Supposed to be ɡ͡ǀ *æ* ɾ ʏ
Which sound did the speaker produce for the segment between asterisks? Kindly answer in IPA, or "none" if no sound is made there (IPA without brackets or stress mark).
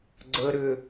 ə